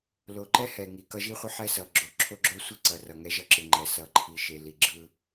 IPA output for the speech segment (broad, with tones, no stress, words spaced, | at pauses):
lo˨ǃɛ˦hɛ˨ ŋi˨kʌ˦ʒi˦χʷʌ˦ ħɛ˦sʌ˨ ɡ͡ǁo˨ǁʰo˦ɡ͡ǁo˦sʷi˦ ǀʌ˨rʌ˨ ŋɛ˦ʒʌ˦ǁɯ˨ ŋ͡ǃɛ˨ sʌ˨ ǃʰi˨ʃe˨ li˨ɡ͡ǁɯ˦